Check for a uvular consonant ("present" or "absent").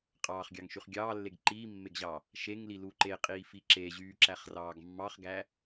present